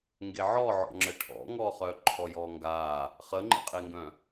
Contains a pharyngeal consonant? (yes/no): yes